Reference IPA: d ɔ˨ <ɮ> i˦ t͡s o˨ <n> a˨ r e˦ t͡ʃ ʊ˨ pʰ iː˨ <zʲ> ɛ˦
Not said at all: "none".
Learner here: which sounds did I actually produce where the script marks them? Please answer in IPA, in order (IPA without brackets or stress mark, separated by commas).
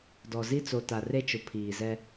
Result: z, t, z